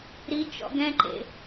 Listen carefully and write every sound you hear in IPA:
ɾit͡ʃɔ̰ ɡɛ̃ǃḛ

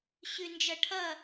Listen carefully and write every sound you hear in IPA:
ɕʉnd͡ʒʌʈʰʌ

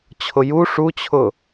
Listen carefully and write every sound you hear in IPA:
t͡ɕʰʊju ʂut͡ɕʰʊ

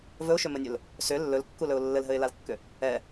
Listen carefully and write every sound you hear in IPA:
vɵʊ̯ʃʏmɘnʲɵl | sʏ lːɵlkːulɵʊ̯ lːɘlɦɘɪ̯lalkːʏ | ɛ

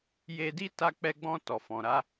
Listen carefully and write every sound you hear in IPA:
je˧di˦ ta˧k͡pɛ˧ɡ͡bɔ̃˧ tɔ˨fɔ̃˨ɾa˨˦

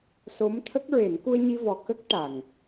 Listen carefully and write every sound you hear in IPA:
so˧˥mt̪ʰə˦˥k̚ɹe˨˩˦n ku˧ə̯ɲi˧vɔ˨˩kə˦˥k̚ ʈa˨˩ŋ

